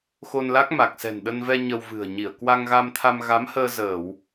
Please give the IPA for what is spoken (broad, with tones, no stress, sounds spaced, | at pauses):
x o˧ n l a˦˥ k̚ m a˨˩ k̚ s ɛ̤˨˩ n ɗ ə˧ n v ɛ˧ ɲ ə˧ w v ɨ̤˨˩ ə̯ ɲ i˧˩ ə̯ k w a˧ ŋ ɣ a˧ m t̪ʰ a˧ m ɣ a˨˦ m h əː˧ z əː˧˩˨ w